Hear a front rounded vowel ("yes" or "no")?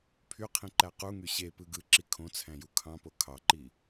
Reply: yes